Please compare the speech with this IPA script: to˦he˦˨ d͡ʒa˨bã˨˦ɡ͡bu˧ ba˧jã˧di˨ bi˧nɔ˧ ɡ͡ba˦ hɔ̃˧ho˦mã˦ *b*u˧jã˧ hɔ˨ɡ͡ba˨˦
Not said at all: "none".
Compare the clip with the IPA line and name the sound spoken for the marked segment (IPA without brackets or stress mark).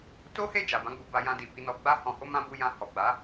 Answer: b